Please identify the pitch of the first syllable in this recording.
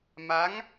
rising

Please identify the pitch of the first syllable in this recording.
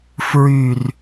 falling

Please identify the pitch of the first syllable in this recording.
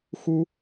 high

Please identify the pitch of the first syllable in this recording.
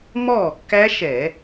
falling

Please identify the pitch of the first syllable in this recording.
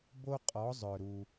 high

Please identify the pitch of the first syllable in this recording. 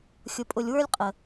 low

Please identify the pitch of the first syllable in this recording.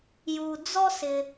low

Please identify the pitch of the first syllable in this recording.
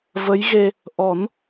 rising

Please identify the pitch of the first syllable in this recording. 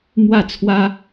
falling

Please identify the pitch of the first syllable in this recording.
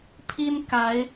high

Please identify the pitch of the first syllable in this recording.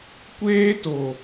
high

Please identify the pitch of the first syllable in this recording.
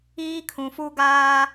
high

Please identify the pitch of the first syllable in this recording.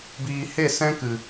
low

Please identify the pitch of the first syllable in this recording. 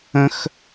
high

